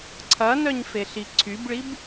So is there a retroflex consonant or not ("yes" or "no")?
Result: yes